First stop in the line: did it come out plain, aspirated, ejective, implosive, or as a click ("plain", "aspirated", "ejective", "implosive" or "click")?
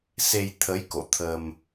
aspirated